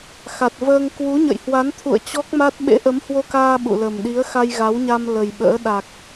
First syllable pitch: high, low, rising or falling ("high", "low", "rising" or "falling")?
low